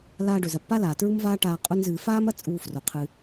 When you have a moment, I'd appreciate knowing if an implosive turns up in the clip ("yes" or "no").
no